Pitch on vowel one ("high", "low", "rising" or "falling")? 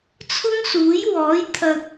high